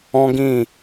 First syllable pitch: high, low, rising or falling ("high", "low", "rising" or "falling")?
high